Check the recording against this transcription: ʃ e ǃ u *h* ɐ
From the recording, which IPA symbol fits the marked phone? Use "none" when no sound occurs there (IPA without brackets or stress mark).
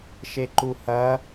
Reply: h